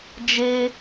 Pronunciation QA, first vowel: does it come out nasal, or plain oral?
oral